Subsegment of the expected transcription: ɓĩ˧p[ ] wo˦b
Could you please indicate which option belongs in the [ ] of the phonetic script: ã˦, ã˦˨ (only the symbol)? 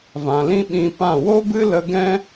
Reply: ã˦˨